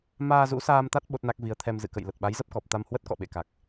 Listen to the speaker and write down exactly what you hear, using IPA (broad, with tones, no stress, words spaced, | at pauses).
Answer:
maː˧zṵ˧˥saː˧m t̪a˦˥t̚ ɓo˦˥t̚na˦˥k̚ vi˨˦ə̯t̪ʰɛ˧m zɨ̰˧˨kə̰˧˨j lə˨˩t̚ɓa˨˦jzə˦˥p̚kɔ˨˩p̚ t̪a˧mhwə˦˥t̚ kɔ̰˧˨ɓḛ˧˨ka˨˩k̚